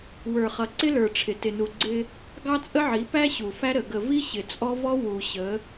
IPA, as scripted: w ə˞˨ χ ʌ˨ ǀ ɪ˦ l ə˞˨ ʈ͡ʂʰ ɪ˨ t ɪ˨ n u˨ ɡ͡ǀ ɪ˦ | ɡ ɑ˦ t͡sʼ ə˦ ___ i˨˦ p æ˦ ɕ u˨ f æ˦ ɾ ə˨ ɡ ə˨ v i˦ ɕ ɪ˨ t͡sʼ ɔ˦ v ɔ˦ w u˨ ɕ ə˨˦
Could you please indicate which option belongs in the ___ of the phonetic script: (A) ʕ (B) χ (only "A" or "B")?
A